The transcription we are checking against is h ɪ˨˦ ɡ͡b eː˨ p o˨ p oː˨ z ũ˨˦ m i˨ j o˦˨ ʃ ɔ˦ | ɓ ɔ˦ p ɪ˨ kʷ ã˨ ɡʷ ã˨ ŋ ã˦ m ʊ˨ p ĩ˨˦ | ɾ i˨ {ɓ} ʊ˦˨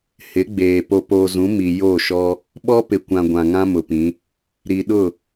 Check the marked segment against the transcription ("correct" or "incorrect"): incorrect